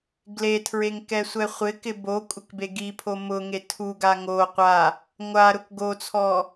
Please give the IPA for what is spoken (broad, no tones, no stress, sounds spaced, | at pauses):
ɡ l e tʰ ɹ e ŋ k ɛ sʷ ɛ χʷ ɪ k ɪ b o kʷʼ ɪ k b e ɡ i pʰ o m ʊ ŋ e tʰ u ɡ a ŋ o qʷ a | ŋʷ a ɾ ʊ k ɡ o t͡sʰ ɔ